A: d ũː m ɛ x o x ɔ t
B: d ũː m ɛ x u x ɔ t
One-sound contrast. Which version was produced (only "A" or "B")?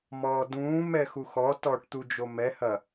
B